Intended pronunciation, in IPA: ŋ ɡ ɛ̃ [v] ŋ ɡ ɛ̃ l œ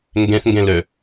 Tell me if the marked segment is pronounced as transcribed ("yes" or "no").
no